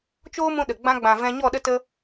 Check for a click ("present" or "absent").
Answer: absent